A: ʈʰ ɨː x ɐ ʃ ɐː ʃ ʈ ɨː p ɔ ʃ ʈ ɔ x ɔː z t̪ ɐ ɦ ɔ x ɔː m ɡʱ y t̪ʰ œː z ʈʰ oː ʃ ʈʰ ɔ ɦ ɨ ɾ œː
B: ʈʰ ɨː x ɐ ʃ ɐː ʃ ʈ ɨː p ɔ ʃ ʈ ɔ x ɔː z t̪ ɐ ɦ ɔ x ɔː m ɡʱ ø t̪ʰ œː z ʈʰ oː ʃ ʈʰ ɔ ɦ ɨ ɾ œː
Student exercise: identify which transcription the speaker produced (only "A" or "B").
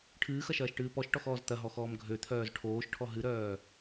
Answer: B